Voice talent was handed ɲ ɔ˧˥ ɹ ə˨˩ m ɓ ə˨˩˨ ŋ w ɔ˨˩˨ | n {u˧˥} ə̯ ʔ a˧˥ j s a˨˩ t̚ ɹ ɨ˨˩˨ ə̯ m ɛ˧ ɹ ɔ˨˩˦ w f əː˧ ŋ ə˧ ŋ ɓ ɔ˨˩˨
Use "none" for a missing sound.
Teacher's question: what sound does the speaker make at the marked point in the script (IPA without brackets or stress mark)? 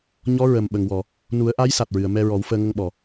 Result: u˨˩˦